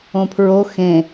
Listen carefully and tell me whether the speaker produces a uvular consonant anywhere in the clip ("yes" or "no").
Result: no